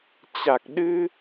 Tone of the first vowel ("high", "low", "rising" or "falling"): low